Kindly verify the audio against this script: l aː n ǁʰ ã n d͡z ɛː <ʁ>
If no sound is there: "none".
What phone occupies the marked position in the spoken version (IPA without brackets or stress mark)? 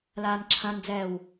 w